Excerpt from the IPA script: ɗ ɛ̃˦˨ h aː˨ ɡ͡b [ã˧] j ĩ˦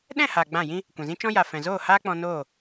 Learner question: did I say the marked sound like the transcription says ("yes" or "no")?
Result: no